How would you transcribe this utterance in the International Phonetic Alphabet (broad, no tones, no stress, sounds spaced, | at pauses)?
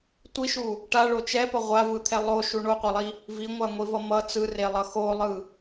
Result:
tʷ i ʃ u | ʈ a ɭ o t͡ʃ ɛ p ʌ ʁʷ a v ɯ t̪ʰ ɛ lˠ o ʃ u ɳ o qʷ a lˠ i | v i ŋʷ a ŋʷ i v ʌ m ʌ t͡s ɯ r e lˠ ʌ x o lˠ ɯ